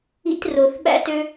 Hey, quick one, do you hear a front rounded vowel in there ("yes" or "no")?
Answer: yes